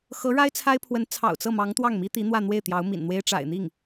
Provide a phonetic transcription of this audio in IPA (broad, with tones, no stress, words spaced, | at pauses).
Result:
xɤ˧˥ɻa˥ɪ̯ t͡sʰa˥ɪ̯pʰwə˧˥n t͡sʰɑ̰˨˩ʊ̯t͡sɤ˥˩mɑ˧˥ŋ t̪wɑ˥˩ŋmi˥t̪i˧˥n̪wä˥˧ n̪we˥˩ɪ̯t̪jɑ˧˥ʊ̯mḭ˨˩nn̪we˥ɪ̯ ʈ͡ʂa̰˨˩ɪ̯n̪i˥˩ŋ